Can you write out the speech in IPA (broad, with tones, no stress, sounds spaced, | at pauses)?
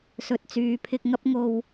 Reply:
s ɵ˨ t̚ t͡s yː˨ pʰ ɪ˧ k̚ ŋ ɐ˥ p̚ ŋ o˧ w